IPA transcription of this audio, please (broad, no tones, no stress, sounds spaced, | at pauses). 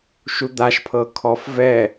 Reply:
ʃ u d̪ a ʃ pʰ ɤ kʰ ɔ f v ɛ